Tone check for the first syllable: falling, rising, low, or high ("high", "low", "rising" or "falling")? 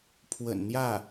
low